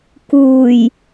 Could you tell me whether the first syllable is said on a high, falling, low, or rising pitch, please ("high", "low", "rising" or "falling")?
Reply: low